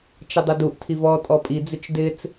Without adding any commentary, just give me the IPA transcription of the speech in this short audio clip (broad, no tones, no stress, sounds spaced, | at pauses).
t͡ʃ ə dˤ ə d u ʔ tʰ i v ɔ tʼ ɔ pʼ i d͡z ʏ t͡ʃ d ɪ t͡s